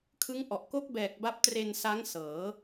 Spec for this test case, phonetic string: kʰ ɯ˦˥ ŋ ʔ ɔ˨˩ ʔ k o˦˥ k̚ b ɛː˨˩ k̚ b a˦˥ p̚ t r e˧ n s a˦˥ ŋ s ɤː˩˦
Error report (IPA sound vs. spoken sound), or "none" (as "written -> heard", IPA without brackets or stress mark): none